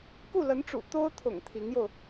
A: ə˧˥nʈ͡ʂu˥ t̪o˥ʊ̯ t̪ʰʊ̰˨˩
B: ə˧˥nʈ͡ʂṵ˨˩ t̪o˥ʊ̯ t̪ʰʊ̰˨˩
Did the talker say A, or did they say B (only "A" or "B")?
B